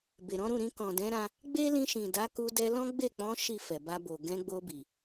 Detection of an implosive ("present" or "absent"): absent